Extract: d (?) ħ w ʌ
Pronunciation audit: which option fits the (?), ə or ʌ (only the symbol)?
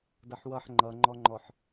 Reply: ʌ